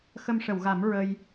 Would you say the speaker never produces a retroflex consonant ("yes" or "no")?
no